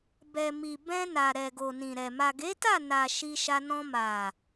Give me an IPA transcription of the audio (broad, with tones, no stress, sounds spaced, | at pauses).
b ɛ˨ m i˨ b ɛ̃˧ n a˨ ɾ ɛ˨ ɡ o˨ n ĩ˨ ɾ ɛ˨ m a˨ ɡ e˨˦ t a˦˨ n a˨ ʃ i˧ ʃ a˧ n ɔ̃˧ m a˨